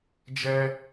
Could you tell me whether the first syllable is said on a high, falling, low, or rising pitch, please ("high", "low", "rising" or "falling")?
high